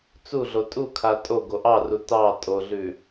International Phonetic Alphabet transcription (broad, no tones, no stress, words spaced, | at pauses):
t͡suɮo tʼukʰa tʼoɡo ʔɑru tɑ tʼoɮʉ